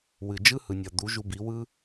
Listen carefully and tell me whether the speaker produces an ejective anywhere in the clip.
no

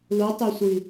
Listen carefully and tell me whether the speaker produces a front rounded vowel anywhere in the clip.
yes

